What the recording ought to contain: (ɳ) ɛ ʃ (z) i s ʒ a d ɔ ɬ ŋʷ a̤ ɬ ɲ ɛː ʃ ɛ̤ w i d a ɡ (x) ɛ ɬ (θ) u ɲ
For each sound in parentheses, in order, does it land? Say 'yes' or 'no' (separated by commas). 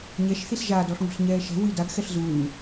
no, no, yes, no